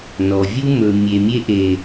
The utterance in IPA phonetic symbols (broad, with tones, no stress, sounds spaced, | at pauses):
n ɔ˨ vʲ u˦ m ɵ˨ mʲ e˨ mʲ e˧ ʔ e˨